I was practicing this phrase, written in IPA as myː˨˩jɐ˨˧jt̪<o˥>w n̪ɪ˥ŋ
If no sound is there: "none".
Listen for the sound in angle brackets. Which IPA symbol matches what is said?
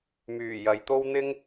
o˥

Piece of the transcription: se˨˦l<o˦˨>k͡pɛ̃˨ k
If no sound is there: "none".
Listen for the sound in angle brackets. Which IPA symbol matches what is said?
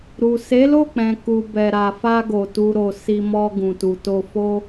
o˦˨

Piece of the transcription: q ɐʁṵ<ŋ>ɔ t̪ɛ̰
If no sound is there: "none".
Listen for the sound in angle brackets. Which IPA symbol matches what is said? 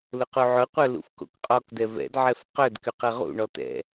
ɳ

